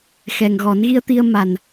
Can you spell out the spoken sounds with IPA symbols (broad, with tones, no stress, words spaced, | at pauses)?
xɛ˨˩ŋɣɔ˨˩˦nɣi˧ə̯t̪i˧ə̯ ma˨˩n